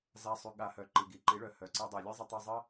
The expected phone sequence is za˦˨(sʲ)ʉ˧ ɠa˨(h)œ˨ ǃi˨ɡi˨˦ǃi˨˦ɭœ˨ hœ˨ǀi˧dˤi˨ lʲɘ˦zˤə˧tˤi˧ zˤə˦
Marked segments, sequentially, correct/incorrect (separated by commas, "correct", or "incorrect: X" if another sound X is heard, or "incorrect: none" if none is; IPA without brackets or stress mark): incorrect: sˤ, correct